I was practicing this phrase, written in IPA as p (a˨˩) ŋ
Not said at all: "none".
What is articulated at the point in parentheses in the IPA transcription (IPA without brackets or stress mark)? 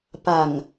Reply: a˨˩